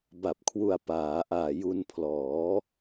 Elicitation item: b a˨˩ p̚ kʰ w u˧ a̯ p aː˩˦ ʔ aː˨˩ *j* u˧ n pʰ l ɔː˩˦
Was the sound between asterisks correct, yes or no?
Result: yes